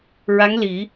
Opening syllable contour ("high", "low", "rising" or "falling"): rising